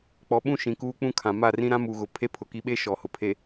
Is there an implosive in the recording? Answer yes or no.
yes